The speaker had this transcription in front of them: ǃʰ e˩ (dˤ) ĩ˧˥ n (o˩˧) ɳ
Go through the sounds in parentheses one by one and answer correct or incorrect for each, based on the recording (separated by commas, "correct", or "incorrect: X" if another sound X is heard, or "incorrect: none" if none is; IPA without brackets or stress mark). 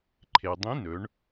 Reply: correct, incorrect: ɵ˩˧